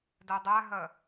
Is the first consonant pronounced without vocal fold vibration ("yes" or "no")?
no